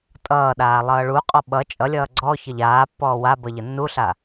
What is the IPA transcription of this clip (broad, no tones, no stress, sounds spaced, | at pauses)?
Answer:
tʼ ʌː ɗ aː lˠ ʌː ɭ u qʼ ɔ ɓ ʌ t͡ʃʼ ʌ lʲ ʌː ɡ͡ǀ ɔ ç ʌ ʎ aː pː ɔː w a b ʌ ʎ ʌ nː u ɬ a